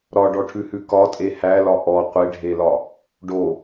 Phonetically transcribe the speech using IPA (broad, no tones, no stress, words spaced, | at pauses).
ɾɒɖɔʈʰʉhʉ kɒtʼe hælɒ ʔɔ qʷeɖʱelɒ | ɖo